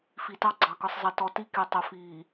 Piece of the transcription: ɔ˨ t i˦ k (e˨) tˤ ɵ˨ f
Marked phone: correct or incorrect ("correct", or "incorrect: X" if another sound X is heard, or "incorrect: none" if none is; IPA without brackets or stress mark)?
correct